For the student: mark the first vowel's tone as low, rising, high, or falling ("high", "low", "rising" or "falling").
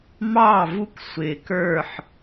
falling